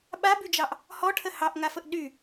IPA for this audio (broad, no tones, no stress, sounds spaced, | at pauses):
ɓ a b y d͡ʒ ɑ ʔ | h ɔ ʈʰ ə h ɑ ʔ ŋ a f ə ʔ ɗ y